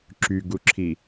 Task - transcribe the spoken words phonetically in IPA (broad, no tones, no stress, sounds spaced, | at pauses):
ǁ y ɡ u ǁʰ i